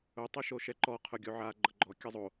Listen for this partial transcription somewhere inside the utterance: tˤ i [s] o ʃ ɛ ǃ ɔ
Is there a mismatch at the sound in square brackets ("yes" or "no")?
yes